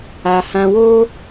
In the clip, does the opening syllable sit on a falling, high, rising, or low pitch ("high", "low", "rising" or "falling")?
low